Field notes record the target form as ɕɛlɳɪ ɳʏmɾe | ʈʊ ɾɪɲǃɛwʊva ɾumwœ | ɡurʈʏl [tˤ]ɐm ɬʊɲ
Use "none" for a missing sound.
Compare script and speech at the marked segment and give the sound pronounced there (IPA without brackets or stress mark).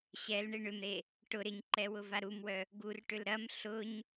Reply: ɾ